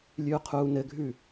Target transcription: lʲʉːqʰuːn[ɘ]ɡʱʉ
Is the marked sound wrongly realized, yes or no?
no